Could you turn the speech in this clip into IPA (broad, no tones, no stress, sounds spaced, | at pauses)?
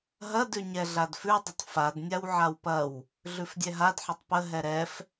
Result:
ɦ ɐ d ʉ ɲ ɛ ɮ a d f ʉ dˤ ə tˤ f a d nʲ a w ʕ a w p ɐ w | ɮ ʉ f dʲ ɛ ɦ a d ħ ə tˤ p ə ɦ ɛ ɾ ɛ f